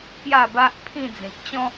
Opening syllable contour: falling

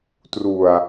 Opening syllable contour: low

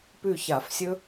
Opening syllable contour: falling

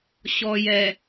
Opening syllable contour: low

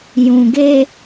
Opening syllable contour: low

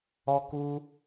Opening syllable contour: high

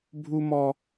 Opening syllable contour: high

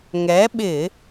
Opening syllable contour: rising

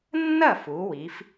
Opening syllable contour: falling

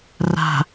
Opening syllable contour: low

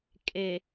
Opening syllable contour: low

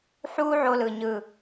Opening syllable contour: high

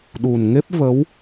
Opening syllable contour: low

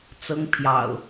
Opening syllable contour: high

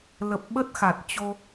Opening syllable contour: low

